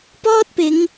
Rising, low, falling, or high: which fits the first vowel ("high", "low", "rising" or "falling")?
high